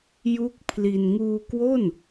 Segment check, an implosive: absent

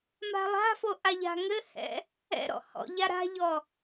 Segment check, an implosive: absent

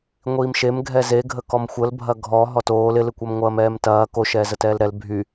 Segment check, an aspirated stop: absent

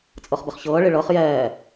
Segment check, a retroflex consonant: present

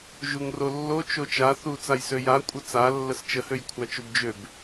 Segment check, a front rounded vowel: present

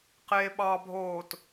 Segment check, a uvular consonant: present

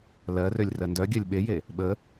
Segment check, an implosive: present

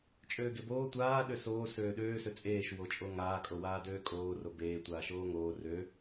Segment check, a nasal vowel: absent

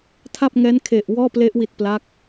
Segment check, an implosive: absent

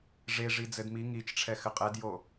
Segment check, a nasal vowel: absent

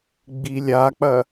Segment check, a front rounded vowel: absent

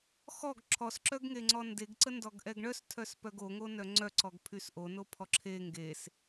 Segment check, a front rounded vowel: present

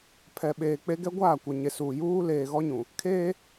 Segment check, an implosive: present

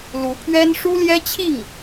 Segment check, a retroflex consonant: present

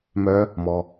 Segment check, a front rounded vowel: present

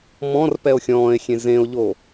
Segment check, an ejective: absent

